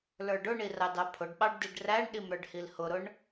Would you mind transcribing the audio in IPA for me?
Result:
l ə˞ ɖ ʊ ɳ i r ɑ d ɑ pʰ ʊ ɖ ɓ ɑ ɖ d i ɖ r æ ɳ ɗ i m ɾ ə˞ ɖ h i l h ʊ ɾ ʊ ɳ

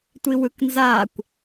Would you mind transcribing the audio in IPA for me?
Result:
tʷ i w ɯ k n z a kʷ

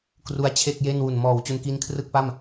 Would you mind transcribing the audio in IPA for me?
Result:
k r u˦˥ a̯ t͡ɕʰ e˥˩ k̚ j e˥˩ n w u˨˩ n m ɔː˨˩ w t͡ɕ u˧ n k i˦˥ n kʰ r ɯ˥˩ k̚ p a˥˩ m

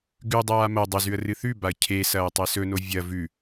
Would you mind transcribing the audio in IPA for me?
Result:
ɡ ʉ dˤ aː m ɐ dˤ ɵ z ʉ ə̯ r ɨ θ ʉ b a ə̯ cʰ e s ɐː tˤ e s ɵ n o vʲ ɐ v ʉ

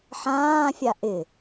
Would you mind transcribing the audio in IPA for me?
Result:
ħ ãː fʲ a ʔ ɪ

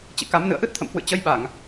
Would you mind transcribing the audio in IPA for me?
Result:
t͡ɕ ḭ˧˨ k a˨˦ m n ɨ̰˧˨ ə̯ ʔ ɨ˦˥ t̚ t̪ʰ ə̰˧˨ m h w ɨ̰˧˨ t͡ɕ ə˧ j ɓ a˧˩˨ ŋ

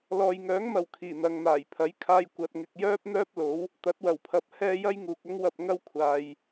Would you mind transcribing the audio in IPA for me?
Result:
l ɔː˨ j ŋ œː˨˥ ŋ m ɐ˨ w kʰ iː˨˩ n̪ ɐ˨ ŋ n̪ aː˨˩ j pʰ ɐ˨˥ j kʰ aː˧ j kʷ ɐ˥ t̚ ŋ ɪ˥ k̚ j œː˥ p̚ n̪ œː˥ p̚ l o˨˥ w | t̪ ɐ˨˥ t̚ w ɐ˨˩ w pʰ ɐ˧ p̚ h ɛː˥ j ɐ˥ j ŋ uː˨ k̚ ɐ˥ ŋ w ɐ˧ p̚ ŋ ɐ˥ w kʷʰ aː˨ j

